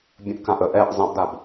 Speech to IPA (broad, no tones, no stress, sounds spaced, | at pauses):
bʲ ə̃ ʔ k ã ʔ ə ʔ ɛ ʔ zˤ ə̃ ʔ d a b